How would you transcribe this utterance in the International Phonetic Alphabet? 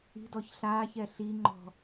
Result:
i̤ d ɔ ç ɬ aː ç ɛ ɬ i ŋ͡ǃ ɔ̤

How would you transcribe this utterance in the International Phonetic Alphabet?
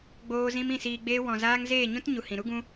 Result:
ɡ͡b oː˦ z ĩ˦ m ĩ˦˨ s iː˧ ɡ͡b eː˦ w ɔ̃˧ z aː˦ ŋ z eː˦˨ ɲ ũ˦ t ɲ u˨ h ĩ˨ ɾ u˦ ɡ ũ˦

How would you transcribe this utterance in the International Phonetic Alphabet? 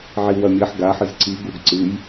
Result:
ʕ i w ɐ mʲ ɐ ħ ɡ a ħ ɨ z ǀ i ɡ u ɡ ǀ ɨ j

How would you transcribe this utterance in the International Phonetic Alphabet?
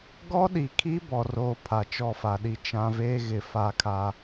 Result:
ɡ ɔ˦ ɗ i˨ kʰ i˦ b ɔ˨ r oː˨ pʰ a˨ t͡ʃ ɔ˦˨ f a˨ ɗ i˦ t͡ʃ ã˦ v eː˦ ɣ ɪ˨ f a˦ kʰ a˦

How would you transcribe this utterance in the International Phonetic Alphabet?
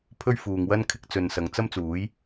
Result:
pʰ ɵ˥ ɥ f uː˨ ŋ w ɐ˥ n kʰ ɪ˧ k̚ t͡s ɵ˨ n s ɐ˨˧ ŋ t͡s ɐ˥ m t͡s uː˨˥ j

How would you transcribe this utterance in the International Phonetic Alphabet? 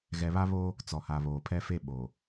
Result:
ɣ ɛ˨ β a˦ β o˦ | t͡s ɔ˨ h a˨ β oː˨ pʰ ɛ˦ f e˦ ɓ o˨

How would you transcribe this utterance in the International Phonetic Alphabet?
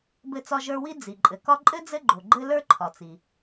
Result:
b ɘ˦ t͡s ɒ˦ ʒ ə˞˦ w i˥ d͡z i˩ ǃʼ ɘ˩ k ɒ˦ ǃʼ ɘ˥ d͡z ɘ˥ ɡ͡ǃ o˩ ɡ͡ǃ ɘ˥ l ə˞˥ ǃʰ ɒ˩ t͡s i˩

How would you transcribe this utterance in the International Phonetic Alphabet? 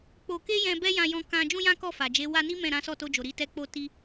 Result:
k͡p o˧ k e˦ j ɛ̃˧ b ɛ˦ j ã˧ j ɔ̃˧ k ã˧ d͡ʒ ũ˦ j ã˦ k ɔ˦˨ f a˨ d͡ʒ e˨˦ w a˧ n i˦ m ɛ̃˦˨ ɾ ã˨˦ s ɔ˦˨ t o˧ d͡ʒ o˨ ɾ i˧ t ɛ˧ k͡p o˧ t i˧

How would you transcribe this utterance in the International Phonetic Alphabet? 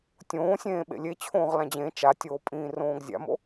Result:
tʲ õː sʲ ẽː ɓ ḛ lʲ e t͡ɕʰ õː ʁ l ã d͡ʑ ẽ t͡ʃ a tʲ oː pʼ ĩː r õː ɡ zʲ a̰ m o̰

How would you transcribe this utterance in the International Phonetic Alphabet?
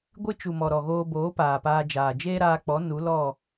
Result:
ɡʷ ɨ˦ t͡ʃ u˨ m ɔ˨ ɾ ɔ˨ ɣ oː˧ b oː˨˦ p aː˨ p aː˧ d͡ʒ aː˨ d͡ʒ eː˦ ɾ aː˧ k͡p ɔ˨˦ n u˨˦ l ɔ˦˨

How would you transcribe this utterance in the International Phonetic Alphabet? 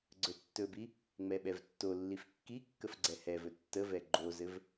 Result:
ɡ͡ǀ ɵ tː ɵ b i | ŋ͡m ɛ ɓ ɛ v tː o lː i f kː i kː ə f ɡ͡ǀ ɛ h ɛ v ɵ tː ə v ɛ ɡ͡ǃ o z ɘ v

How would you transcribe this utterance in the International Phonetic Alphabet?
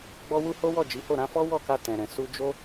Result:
ɡ͡b ɔ˧ w u˧ h o˦ w ɔ˦˨ d͡ʒ i˨˦ h o˦˨ ɾ ã˧ f ɔ˦ w ɔ˦˨ k a˧ t ɛ̃˨ ɾ ɛ̃˨ s u˧ d͡ʒ o˦

